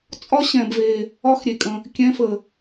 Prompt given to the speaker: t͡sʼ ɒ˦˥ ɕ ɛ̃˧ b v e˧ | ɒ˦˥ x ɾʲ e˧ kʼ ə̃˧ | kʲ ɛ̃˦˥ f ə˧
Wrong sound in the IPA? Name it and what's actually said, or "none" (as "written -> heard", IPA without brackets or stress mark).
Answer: none